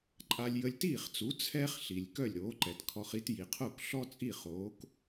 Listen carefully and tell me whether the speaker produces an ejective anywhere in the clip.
yes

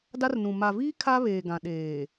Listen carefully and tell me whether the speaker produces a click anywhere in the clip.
no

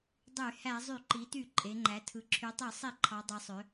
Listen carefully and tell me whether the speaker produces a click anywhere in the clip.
yes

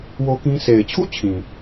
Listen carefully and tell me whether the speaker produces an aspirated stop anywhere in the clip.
yes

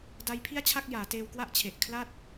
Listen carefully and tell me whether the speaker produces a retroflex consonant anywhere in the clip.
no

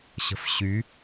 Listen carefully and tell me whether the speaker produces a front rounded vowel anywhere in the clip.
yes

